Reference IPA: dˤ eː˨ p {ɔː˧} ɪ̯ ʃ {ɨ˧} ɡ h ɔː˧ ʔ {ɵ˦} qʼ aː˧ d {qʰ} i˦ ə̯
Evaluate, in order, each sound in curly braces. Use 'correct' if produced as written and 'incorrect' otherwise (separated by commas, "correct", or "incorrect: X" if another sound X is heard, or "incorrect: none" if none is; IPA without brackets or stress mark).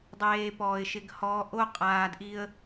incorrect: ɔː˨, incorrect: ɪ˧, incorrect: o˦, incorrect: ʔ